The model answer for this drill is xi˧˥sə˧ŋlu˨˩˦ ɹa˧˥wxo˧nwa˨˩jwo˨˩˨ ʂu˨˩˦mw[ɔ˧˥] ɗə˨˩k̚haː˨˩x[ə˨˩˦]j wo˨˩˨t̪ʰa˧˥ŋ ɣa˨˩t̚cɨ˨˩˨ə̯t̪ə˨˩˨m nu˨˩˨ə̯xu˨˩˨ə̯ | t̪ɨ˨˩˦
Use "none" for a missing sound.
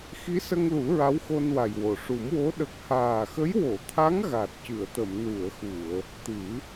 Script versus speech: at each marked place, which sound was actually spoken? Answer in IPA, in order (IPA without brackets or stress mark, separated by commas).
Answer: o˧˥, ə˧˥